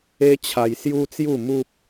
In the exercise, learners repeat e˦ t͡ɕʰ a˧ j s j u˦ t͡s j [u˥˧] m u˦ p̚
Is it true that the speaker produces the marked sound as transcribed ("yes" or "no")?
yes